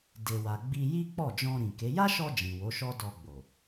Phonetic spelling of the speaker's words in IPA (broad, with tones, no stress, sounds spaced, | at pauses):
d e˨ w a˨ ɡ͡b i˧ j i˦ k͡p ɔ˦˨ d͡ʒ ɔ̃˧ ɾ ĩ˨ k e˨˦ j a˦ ʃ ɔ˧ d͡ʒ ĩ˨ w o˨˦ ʃ ɔ˦ d ɔ˧ ɡ͡b o˨